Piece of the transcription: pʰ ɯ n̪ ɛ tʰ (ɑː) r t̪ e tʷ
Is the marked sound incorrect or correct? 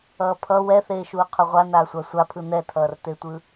incorrect